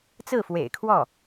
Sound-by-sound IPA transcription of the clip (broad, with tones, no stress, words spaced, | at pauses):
t͡sɹ̩˥˩fwḛ˨˩ɪ̯kʰwɔ˥˩